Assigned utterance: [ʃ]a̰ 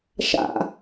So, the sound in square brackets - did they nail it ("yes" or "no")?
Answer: yes